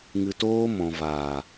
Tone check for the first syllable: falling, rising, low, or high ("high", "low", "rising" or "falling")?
low